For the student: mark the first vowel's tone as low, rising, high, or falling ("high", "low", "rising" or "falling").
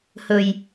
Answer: low